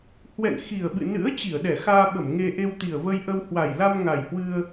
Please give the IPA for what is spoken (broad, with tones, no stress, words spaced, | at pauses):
hwɛ̰˧˨n xi˨˩ə̯ɓɨ̰˧˨ nɨ̰˧˥ə̯ t͡ɕi˧˩ə̯ɗɛ˧˩xaː˧ɓə˧˩m ŋe˧ʔe˧w t̪i˨˩ə̯və˧j ʔə˧w hwa˨˩jla˧m ŋa˨˩jhwɨ˧ə̯